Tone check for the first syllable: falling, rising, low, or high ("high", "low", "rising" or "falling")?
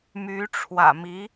rising